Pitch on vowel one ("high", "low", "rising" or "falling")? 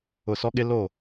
falling